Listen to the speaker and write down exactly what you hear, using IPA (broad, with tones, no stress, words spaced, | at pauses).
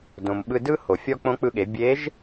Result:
dõ˩mɓɯ˧dɯ˥ ho˩fʲɔ˥ k͡põ˧˥k͡pɯ˧ɠe˩˧ bʲe˧˥ʒ